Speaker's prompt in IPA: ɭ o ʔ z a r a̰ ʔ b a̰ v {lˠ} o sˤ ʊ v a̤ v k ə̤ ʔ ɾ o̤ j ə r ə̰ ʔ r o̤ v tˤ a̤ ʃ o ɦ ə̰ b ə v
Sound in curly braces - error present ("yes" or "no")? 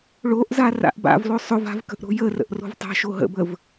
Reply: no